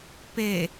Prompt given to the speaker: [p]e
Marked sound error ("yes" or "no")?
no